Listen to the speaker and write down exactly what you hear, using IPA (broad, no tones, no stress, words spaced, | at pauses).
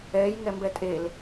ɛːjŋɛmbɛ tʼel